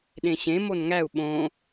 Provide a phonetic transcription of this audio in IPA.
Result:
ɗ ẽ ɕ ẽ m o n ŋ æ u̯ ɓ õ

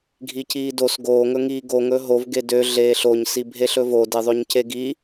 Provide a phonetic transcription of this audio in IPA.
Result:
ɡʱ i c iː d o s ɡ oː ŋ ɵ ŋ iː ɡ o ŋ ɵ ɦ o v ɡ e d ø ɮ eː ɬ o ɲ s i bʱ e ɬ ɵ v o d e ðˤ ø ɲ c e ɡ i

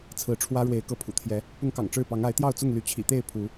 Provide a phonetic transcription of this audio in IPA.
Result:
t͡sʰ ɹ̩˨˦ ʈ͡ʂʰ w ä˦ ɻ w e˨˦ ɪ̯ k ɤ˨˦ pʰ ṵ˨˩ t̪ʰ j ɛ˨˦ | p ʊ˦ ŋ k ɑ̰˨˩ ŋ ʈ͡ʂ ɻ̩˥˨ p ɑ˨˦ ŋ a˨˦ ɪ̯ t̪ j ɑ˥˨ ʊ̯ t͡s ʊ˥˨ ŋ l y˨˦ t͡ɕʰ ḭ˨˩ t̪ e˥˨ ɪ̯ pʰ u˨˦

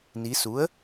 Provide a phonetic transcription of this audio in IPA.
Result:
n i˩˧ s u˩˥ ə̯

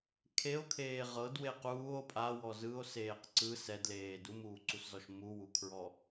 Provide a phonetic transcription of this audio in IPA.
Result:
kʰ e o̯ kʰ eː ʁ ɤ d w e q uː o̯ pʼ a w ɔ z ɯ o̯ s eː q ǀ ɯ s ɛ d l eː d u m uː ǀ u s z ɔ ʃ m u w u kʰ ɹ ɔ

